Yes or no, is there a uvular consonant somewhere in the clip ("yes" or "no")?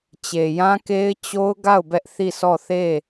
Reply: no